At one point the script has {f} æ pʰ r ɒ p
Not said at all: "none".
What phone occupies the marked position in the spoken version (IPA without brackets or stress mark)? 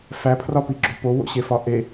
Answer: f